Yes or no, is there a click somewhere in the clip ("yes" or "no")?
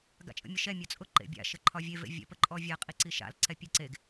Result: yes